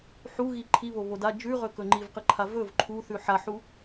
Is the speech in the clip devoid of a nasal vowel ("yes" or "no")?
yes